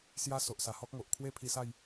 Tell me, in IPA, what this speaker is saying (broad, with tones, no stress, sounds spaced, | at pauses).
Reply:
s j a˦ s o˨ ʔ s a˨˩ h ɔ˦ k̚ ŋ o˨ ʔ kʰ w e˦ pʰ i˧ s a˥˧ j